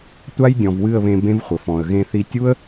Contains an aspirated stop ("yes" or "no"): no